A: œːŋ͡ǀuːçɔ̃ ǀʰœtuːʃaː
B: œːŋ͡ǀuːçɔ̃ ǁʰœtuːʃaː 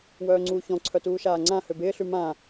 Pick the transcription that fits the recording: A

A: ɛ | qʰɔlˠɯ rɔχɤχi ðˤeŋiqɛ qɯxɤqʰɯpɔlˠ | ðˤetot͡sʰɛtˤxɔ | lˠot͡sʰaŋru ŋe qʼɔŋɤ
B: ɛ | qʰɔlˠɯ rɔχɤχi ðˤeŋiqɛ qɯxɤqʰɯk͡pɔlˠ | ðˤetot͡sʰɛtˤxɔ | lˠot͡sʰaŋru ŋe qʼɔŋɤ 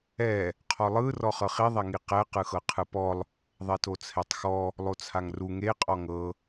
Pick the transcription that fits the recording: A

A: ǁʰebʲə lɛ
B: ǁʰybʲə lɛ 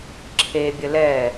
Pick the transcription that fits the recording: A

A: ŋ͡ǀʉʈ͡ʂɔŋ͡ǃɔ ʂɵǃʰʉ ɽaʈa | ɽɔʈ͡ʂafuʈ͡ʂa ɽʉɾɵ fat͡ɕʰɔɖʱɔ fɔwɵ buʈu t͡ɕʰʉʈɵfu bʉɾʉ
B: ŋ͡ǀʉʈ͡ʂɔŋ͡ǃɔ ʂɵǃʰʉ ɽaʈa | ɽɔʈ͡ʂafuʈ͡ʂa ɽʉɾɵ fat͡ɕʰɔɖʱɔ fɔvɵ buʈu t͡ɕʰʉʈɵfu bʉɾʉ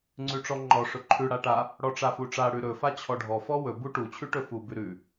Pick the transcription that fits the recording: A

